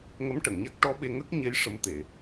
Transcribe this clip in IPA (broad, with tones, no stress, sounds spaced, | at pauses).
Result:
ŋ ə˧˥ m ʈ ə˨˩˨ ŋ ɲ a˦˥ k̚ ʈ ɔ˧˥ ɓ e˧ ŋ ə˦˥ k̚ ɲ e˧˥ j ʂ ə˧˥ m t̪ e˨˩˨